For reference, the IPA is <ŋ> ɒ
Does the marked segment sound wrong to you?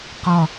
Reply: yes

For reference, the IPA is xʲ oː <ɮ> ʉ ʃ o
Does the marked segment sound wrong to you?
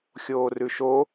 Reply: yes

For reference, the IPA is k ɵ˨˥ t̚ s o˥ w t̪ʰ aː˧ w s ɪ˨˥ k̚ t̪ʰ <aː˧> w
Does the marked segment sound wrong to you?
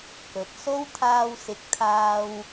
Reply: no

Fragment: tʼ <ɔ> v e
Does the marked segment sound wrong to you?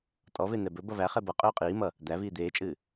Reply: no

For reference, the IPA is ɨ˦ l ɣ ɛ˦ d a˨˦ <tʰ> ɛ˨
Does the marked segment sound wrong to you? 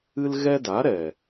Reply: yes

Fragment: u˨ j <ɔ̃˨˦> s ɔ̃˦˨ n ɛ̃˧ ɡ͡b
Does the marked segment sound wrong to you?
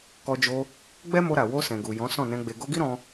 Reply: no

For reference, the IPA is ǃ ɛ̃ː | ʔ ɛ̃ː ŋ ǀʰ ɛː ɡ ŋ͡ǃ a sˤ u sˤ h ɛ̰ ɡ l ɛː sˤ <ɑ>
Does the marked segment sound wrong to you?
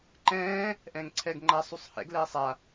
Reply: yes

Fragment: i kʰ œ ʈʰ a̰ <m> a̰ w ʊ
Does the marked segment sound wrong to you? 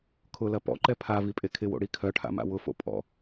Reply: no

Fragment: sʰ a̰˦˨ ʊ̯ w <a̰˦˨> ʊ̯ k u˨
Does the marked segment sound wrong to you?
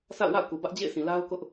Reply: no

